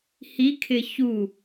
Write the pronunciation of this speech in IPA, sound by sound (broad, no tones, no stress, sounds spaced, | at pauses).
h i kʰ ɪ ç u